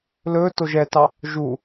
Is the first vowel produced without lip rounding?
no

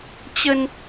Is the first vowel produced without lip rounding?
yes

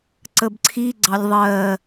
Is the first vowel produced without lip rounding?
yes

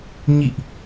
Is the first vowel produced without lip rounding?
yes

